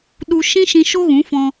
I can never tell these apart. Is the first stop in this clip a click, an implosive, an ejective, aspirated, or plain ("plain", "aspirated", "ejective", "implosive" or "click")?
implosive